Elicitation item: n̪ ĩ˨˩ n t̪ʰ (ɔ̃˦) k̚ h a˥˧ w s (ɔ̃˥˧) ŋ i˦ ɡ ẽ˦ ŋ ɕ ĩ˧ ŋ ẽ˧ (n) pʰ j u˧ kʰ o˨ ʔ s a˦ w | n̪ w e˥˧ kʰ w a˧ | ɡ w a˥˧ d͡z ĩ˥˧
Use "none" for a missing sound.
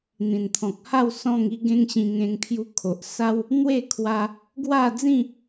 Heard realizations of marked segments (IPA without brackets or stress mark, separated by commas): ɔ̃˨, ɔ̃˥˧, ŋ